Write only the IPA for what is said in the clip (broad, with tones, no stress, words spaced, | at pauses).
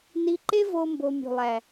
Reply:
ni˧ǃe˦vo˧ mbo˧mʲṳ˨lˠæ˨